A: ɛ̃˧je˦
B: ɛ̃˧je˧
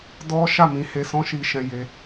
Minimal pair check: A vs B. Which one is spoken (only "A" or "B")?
B